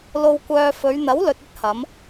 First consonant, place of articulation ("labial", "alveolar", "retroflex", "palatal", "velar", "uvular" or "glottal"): alveolar